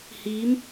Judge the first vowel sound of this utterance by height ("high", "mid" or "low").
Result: high